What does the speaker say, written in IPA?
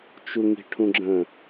t͡ʃ u ŋ i̤ ʈʰ ũ ɡ͡ǁ ə̃

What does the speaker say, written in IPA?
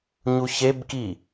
ɲ u ç e b k i

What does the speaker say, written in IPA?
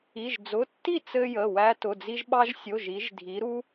i˩˧˩ ʒ d͡z ʊ˩˧˩ tː i˥˩ t͡s ɘ˧ j ə˩˧˩ w æ˧ t ʊ˩˧˩ d͡z i˧ ʒ ɓ ɑ˧ ʒ sʲ o˩˧˩ ʒ i˩˧ ʒ dʱ i˩˧ ɾ u˧

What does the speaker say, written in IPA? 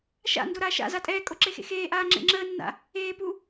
ʃ a̰ n d o ɾ aː ʃ a̰ z a tʼ ɛː kʼ o ǁ e x ḛ x eː ʔ aː ŋ͡ǁ ḛ ŋ͡ǁ əː nː a̰ | eː p u

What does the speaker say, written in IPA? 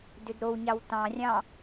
d ʏ d ɾ o w ɲ ɑ w t ɑ̃ rʲ ɑ̃

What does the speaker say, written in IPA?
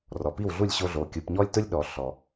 r ɔ˩ p i˥˩ w ɮ u˥˩ lʲ ɕ o˧ ɮ o˩ kʲ u˩ p ɲ ɔ˥ lʲ t ʊ˥ lʲ ɗ ɔ˩ ɬ ɔ˩

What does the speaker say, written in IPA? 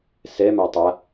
s ɛ m a tˤ a

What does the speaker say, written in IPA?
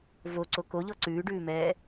v o ǀ o k o ʎ ɔ ǀ ʉː ɖ ʉː m ɛː

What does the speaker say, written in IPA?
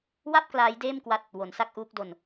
w a˥˩ p̚ k l aː˦˥ j d eː˥˩ m k w a˦˥ t̚ | w o˩˦ n s a˥˩ k̚ ʔ uː˦˥ k̚ d o˧ n

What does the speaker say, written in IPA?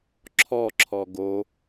ǁʰ ɔ ǁʰ ɔ ɡ o

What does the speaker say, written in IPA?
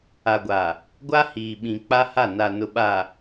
a˨ ɡʷ a˨ | ɡʷ a˦ h iː˨ ɓ ĩ˨ k͡p a˦ h a˦˨ n a˨ n ʊ˨ ɓ a˨

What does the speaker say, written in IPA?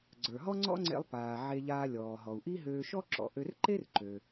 ɡ͡ǀ ə˞˩ ɦ ɔ˥ ŋ͡ǀ ɔ̰˥ ŋ͡ǀ ḛ˧ lˠ p aː˩ ʕ e˧ ʎ aː˧ lʲ ɔː˩ ɦ ɔ˩ u̯ ʔ i˥ ɦ øː˧ ʃ ɔ˥ ǁ ɔ̰˩ ʔ ø˧ r ǃ e˥ r ǃ ø˩

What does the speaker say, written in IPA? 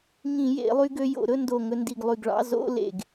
ŋ ĩ˧˩˧ j ḛ˧˩˧ lˠ y˧ ɡ ø˧ j o̰˧˩˧ ɾ ɵ˥˧ n d o˧˩ ŋ ɵ˧ n d i˧˩ ɡ lˠ y˧˩ ɡ ɭ ɑ̰˧˥˧ z o̰˧˥˧ l ḛ˧˩ ɡ

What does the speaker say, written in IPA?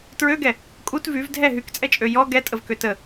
t ɹ ø ɡ ɛ | kʼ u t v y v dʱ ɛ ɦ y k t͡sʼ ɛ t͡ʃʼ ø j ɔ ɡ ɛ tʼ ə v k ø t ə

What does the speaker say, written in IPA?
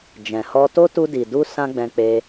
d͡ʒ ɛ̃˨ h ɔ˧ t o˦ t u˧ d i˨ d u˧ s ã˦ ɡ͡b ɛ̃˧ k͡p e˧

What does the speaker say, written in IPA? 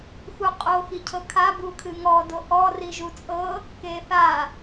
x u qʼ o x i cʰ ɤ kʰ a b u kʰ ɨ ŋ ɔ d o ʔ ɔ r i ʒ u t͡sʼ ɤ | k e θ a

